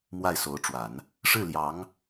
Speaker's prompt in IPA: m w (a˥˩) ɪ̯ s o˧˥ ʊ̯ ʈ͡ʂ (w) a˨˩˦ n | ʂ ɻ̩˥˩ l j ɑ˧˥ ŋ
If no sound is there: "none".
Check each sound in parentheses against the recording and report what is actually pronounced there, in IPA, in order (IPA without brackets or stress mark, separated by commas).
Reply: a˥˩, w